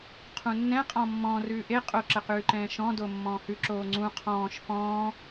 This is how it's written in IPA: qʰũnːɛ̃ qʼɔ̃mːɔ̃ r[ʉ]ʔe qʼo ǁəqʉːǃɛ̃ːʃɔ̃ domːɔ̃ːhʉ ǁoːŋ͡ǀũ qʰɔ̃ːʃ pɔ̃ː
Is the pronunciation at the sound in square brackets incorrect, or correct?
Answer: incorrect